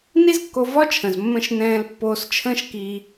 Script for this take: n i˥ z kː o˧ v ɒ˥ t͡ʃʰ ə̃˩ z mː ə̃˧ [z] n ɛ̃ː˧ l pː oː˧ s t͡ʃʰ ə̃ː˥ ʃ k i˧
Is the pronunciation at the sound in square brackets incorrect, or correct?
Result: incorrect